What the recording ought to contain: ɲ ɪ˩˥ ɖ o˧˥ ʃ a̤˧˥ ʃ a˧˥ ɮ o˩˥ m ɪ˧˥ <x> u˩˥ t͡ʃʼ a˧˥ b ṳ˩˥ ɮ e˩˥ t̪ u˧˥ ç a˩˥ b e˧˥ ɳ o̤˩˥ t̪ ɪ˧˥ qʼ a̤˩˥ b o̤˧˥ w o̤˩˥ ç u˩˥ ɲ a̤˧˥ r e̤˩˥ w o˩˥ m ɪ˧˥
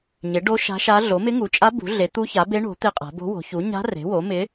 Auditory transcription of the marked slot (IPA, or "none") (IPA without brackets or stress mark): ŋ